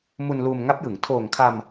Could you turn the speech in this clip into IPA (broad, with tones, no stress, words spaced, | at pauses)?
mu˧nluː˧mŋa˦˥p̚jɯ˩˦ŋ tʰoː˨˩ŋkʰa˧m